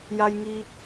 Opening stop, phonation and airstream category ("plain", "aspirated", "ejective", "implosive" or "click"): plain